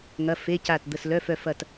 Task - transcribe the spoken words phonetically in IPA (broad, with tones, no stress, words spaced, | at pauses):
ŋɐ˧˥˧fe˧˥˧ca˦˨t d̪ə˦˨slœ˧˥˧f œ˦˨f ɐ˦˨t